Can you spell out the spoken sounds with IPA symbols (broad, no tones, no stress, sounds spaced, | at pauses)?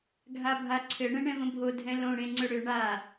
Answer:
ɡʱ a bʱ a ǀʰ ɘ ɳ ɛ̃ ɳ ɛ̃ v ə̃ bʱ o dʱ ɛ̃ l õ ɽ ẽ ŋ͡ǀ ʏ ɽ ʏ ɳ a